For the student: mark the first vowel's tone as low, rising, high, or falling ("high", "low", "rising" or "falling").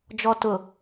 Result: low